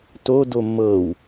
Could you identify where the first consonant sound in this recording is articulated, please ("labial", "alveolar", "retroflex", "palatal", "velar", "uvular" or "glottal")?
alveolar